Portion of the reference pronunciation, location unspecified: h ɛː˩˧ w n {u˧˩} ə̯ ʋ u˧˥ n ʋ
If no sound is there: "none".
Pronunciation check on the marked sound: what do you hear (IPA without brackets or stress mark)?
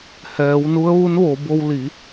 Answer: u˧˥